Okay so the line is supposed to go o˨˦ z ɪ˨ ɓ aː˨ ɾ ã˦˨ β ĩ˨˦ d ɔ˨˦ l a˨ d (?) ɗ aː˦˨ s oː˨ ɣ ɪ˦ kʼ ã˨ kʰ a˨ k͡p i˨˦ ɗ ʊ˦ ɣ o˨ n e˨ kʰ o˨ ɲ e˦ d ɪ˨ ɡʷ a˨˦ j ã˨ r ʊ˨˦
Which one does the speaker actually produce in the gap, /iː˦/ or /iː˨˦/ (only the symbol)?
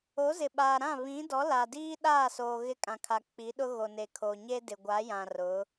iː˦